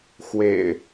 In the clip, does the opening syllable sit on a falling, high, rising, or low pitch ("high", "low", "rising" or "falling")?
low